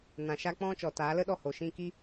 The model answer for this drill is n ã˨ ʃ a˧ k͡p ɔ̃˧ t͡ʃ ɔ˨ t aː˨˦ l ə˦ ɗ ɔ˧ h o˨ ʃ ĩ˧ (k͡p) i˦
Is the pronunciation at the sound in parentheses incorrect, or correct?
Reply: incorrect: k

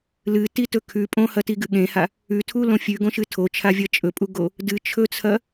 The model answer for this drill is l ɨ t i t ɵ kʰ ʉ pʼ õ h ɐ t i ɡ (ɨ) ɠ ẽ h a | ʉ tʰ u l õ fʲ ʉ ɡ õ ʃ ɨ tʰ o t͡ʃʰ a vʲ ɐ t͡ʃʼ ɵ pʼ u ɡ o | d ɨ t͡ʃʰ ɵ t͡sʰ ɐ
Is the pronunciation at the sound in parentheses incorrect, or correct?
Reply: correct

